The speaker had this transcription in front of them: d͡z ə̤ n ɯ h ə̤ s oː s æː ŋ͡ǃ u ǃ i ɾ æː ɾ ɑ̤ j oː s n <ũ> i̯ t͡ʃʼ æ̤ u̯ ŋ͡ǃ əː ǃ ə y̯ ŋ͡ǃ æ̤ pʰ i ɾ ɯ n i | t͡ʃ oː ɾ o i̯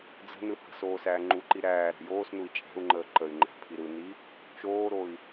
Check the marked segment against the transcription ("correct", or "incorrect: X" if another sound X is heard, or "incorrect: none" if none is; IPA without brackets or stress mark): incorrect: u